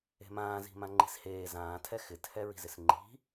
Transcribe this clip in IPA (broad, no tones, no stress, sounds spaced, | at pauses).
e̤ m ãː z i̤ m ã ŋ͡ǃ i̤ s h eː z ãː tʰ ɛ x ɪ tʰ ɛ ɹ i̤ z ɪ s ŋ͡ǃ i̤